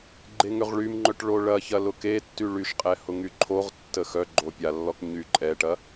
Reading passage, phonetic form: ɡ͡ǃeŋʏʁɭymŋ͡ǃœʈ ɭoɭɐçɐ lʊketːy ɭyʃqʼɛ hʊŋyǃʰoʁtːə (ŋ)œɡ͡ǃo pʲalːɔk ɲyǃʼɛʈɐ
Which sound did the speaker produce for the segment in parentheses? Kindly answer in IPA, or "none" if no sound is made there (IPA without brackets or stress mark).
x